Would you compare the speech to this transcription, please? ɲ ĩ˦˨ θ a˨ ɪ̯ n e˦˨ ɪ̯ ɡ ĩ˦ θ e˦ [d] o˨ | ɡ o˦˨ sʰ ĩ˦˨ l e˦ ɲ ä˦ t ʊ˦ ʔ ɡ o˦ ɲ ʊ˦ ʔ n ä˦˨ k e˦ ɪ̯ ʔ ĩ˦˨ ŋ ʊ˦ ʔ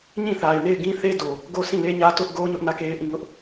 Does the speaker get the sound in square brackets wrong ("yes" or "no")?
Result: no